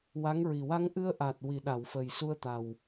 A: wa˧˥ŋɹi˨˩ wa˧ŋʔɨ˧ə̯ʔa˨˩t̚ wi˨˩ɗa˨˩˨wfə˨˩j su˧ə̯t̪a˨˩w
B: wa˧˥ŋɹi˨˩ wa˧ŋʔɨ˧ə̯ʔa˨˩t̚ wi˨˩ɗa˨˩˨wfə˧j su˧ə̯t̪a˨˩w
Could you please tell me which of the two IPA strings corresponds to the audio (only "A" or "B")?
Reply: A